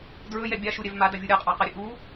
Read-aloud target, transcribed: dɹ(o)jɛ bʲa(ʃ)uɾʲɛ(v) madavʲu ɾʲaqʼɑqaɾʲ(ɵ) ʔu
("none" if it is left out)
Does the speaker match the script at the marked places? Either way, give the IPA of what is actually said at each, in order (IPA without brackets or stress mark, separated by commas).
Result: ɵ, ʃ, v, ɵ